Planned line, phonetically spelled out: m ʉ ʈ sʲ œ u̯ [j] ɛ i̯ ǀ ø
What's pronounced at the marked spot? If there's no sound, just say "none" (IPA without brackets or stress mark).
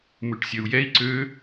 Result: j